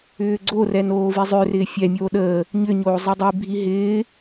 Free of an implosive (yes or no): no